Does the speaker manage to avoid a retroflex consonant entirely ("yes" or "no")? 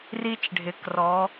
no